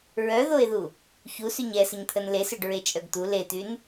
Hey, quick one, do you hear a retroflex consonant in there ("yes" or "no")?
yes